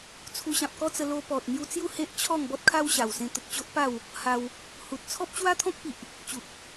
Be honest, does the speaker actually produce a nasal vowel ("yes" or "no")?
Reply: yes